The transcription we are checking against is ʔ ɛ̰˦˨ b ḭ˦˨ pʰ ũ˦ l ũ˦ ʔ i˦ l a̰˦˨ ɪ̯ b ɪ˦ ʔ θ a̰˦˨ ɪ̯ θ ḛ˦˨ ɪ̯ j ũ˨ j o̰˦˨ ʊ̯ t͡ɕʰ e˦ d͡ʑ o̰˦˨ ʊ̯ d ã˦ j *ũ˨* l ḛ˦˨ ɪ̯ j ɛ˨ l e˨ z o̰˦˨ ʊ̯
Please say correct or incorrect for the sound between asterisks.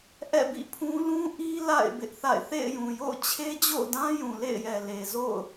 correct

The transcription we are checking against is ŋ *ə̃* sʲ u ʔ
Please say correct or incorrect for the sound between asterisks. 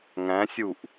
incorrect: æ̃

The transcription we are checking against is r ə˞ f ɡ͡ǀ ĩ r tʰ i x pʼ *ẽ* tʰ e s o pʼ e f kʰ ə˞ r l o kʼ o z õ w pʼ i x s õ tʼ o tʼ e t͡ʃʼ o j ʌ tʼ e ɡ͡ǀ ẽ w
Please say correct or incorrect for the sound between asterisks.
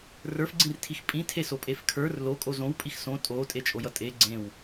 incorrect: ĩ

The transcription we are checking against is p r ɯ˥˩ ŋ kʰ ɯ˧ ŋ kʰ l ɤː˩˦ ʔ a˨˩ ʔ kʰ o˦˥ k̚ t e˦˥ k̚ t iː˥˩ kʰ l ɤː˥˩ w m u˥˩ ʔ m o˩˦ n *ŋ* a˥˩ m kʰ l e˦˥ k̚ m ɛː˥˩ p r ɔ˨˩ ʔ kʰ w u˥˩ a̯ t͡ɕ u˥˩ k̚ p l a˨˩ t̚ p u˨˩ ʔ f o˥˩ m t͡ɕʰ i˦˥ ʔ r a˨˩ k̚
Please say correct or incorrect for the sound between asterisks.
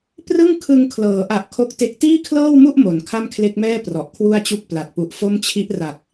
incorrect: kʰ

